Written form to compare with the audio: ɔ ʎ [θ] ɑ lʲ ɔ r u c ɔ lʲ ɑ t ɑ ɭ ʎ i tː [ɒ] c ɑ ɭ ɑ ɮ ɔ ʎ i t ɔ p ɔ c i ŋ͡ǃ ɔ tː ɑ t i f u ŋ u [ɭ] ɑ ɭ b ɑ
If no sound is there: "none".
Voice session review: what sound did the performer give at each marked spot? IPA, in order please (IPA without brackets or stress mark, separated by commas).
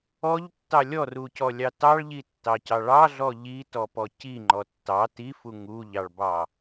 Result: tː, ɑ, ʎ